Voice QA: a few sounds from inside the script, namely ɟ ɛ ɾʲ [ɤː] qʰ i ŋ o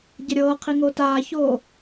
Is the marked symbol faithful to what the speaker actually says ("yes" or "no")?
yes